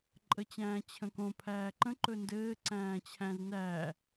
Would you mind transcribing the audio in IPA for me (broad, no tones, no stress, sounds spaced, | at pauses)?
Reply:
ǃʼ ə t͡ɕ æ̃ː t͡ɕʰ ə̃ k õ pʰ æː ǃ ə̃ ǃ ɵ n d ɘː ǀ æ̃ː t͡ɕʰ æ̃ z n æː